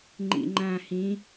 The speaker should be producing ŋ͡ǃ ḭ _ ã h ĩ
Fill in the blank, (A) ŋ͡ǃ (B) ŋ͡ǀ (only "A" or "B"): A